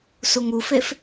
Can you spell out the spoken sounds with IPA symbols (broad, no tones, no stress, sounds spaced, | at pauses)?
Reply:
s u ŋ u f e f